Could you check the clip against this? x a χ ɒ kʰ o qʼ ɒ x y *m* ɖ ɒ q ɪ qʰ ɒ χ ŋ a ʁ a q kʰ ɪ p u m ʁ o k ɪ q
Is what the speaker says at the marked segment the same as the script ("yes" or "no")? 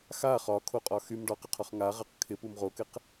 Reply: yes